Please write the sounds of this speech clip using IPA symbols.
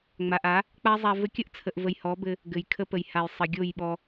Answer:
ŋ͡ma˨ʔa˨˦ | k͡pa˦zˤa˧ vɘ˧kʲə˦ʔt͡sʰə˨ʔvə˨j hɔ˨˦bɘ˧ | ɡɘ˨jkʰə˧pə˨j ha˨j sˤə˨ɡʲo˦˨jɓɔ˧

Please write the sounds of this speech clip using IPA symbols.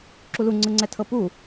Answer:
ǁuluŋ͡ǀɯŋ͡ǀɛ tʰɤpu

